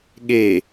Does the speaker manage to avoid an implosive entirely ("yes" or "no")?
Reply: no